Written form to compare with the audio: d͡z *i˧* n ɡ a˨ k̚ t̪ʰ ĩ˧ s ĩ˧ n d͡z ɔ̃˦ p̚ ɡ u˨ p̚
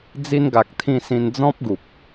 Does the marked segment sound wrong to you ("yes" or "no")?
no